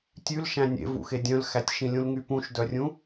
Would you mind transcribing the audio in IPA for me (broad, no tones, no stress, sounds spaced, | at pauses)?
tʲ ʉ l ʃ æ̃ nʲ ḛ v ṵ x e dʲ œ̃ l x æ tʲ ʃ ĩ lʲ ũ l ŋ y p ũ ʃ d œ rʲ ũ